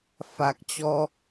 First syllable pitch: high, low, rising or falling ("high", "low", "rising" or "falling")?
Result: low